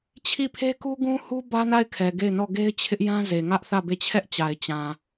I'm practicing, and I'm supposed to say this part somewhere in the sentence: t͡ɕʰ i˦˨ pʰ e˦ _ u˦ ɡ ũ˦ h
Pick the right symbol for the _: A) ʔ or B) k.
B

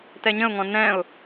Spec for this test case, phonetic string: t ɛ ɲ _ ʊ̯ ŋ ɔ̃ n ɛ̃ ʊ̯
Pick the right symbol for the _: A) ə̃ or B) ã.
A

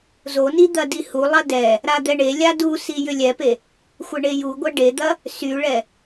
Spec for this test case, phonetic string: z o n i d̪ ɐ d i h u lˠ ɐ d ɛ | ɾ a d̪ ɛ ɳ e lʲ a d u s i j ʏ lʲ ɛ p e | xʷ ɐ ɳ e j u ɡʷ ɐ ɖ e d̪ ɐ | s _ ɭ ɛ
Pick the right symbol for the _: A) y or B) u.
A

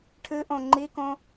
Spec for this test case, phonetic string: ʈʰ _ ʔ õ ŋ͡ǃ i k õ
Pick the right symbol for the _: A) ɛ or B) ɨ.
B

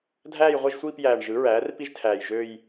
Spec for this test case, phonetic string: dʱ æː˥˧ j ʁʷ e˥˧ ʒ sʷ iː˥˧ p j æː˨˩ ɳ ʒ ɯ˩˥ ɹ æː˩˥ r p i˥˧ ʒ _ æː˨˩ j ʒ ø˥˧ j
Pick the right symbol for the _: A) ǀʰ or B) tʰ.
B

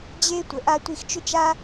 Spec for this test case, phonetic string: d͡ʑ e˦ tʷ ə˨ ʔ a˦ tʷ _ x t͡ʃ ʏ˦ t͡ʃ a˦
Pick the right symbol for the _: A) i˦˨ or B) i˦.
A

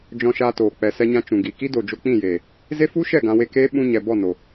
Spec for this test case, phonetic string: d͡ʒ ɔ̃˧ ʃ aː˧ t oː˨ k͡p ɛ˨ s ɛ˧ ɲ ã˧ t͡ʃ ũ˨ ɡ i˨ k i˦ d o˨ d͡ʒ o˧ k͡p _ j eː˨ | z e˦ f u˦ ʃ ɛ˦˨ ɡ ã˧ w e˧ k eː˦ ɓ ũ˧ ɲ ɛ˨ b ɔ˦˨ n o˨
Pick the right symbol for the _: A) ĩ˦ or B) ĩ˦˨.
B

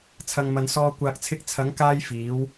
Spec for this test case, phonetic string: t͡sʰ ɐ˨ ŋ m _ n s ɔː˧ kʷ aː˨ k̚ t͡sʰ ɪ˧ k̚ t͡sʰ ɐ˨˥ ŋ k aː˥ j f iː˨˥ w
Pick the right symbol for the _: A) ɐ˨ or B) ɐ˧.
A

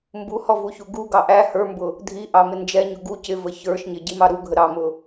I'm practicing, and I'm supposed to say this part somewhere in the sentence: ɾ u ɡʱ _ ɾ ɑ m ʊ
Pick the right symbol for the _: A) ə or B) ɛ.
A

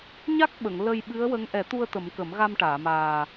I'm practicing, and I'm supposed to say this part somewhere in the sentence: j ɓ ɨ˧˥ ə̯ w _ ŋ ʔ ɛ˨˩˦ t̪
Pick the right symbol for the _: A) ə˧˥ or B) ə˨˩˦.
A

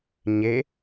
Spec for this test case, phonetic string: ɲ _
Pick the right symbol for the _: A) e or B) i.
A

